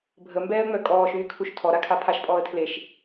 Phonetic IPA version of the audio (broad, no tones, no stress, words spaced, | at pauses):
bʱəmbɛːə̯ŋ͡mœ kʼɔːʃyːkʰuʃ tʰɔɾakʰa pʰaʃpʼɔːə̯ tʰleʃ